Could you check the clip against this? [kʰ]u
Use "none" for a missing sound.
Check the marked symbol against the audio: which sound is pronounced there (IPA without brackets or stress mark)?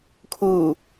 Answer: kʰ